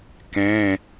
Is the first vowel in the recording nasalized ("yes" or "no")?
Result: yes